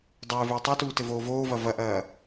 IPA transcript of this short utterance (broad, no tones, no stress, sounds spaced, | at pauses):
dˤ ɘː v ɘː tˤ o t uː t ɘ v oː v oː v ɐ v ɐ ʔ ɐː